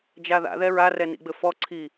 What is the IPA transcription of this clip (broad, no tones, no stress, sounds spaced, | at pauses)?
d͡ʒ a ð a̰ ð ɛ ɹ a r ɛ n ḭ ɡ͡b ɘ f ɔ ǀʰ i